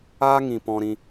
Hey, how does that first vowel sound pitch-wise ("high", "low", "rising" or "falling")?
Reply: high